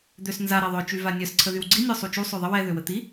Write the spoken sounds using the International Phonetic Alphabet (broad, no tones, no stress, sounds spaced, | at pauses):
d̪ ø s n z a ɾ ɛ ðˤ œ t͡ʃ y v a nʲ œ s ǀʰ ə ð y w ɡ͡ǀ i nʲ ø sˤ u t͡ʃ u sˤ ø ðˤ ə w ɛ ð ø w ə t̪ i